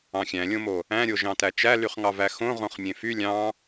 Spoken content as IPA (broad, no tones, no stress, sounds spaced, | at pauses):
ɑ̃ xʲ æ̃ lʲ õ m o | æ̃ ɾʲ o ʒ ɑ̃ t æ t͡ʃ æ l y χ ŋ ɑ v æ x õ ʁ õ χ mʲ ẽ f y lʲ ɑ̃